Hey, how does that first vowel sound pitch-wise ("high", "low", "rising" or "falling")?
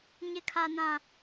high